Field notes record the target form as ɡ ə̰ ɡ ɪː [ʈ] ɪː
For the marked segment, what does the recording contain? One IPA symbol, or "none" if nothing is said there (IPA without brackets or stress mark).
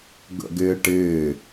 ʈ